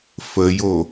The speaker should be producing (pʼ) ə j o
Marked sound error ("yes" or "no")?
yes